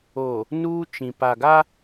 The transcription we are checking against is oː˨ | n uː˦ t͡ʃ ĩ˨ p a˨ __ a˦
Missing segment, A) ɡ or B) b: A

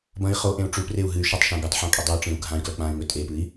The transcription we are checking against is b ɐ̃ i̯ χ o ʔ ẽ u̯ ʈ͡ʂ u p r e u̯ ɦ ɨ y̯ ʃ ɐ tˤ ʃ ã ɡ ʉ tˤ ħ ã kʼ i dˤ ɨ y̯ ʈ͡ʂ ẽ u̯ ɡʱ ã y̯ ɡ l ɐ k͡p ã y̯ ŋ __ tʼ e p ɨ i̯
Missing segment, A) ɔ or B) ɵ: B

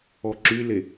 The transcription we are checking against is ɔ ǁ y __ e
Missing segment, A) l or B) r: A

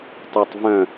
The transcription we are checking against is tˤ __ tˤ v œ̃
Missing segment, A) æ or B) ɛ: A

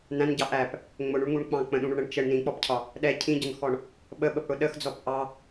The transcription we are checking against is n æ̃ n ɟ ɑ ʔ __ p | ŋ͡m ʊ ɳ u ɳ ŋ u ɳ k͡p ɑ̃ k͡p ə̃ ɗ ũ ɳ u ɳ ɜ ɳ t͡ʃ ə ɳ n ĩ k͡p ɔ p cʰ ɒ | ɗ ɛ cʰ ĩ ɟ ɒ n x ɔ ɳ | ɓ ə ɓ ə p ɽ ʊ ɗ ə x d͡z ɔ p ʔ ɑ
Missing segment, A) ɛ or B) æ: B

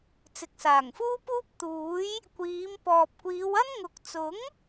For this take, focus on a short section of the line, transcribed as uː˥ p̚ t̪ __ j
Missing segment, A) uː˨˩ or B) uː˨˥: B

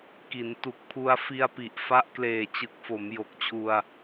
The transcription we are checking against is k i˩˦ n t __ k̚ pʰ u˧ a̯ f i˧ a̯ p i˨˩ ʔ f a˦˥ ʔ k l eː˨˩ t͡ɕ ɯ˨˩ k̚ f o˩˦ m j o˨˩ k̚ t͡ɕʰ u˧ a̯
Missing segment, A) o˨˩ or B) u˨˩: B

